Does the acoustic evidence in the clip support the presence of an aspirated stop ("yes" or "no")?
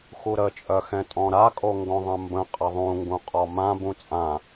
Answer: no